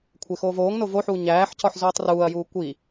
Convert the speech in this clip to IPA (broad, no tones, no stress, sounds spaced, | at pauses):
kʷʰ e x oː v oː ŋ n o v o ħ uː ɲ æː ħ c ɒ ħ z uː tˤ r uː ɐ̯ j uː kʷ i